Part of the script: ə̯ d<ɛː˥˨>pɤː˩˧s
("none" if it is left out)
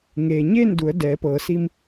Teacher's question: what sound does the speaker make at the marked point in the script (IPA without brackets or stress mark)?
ɛː˩˧